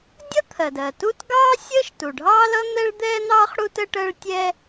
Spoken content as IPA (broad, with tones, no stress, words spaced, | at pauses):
dʲʌ˥t̪ʰɜ˩dɜː˩tuː˥t ɡɑː˥sʲəː˥ʃ tu˩ɖʱɑː˥lʌ˥ n̪ɛ˥ɭd̪ɛː˥n̪ɑː˥χ ɽu˥t ə˥ʈəː˥ɭ tʲɛ˥